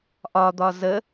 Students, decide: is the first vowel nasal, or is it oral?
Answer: oral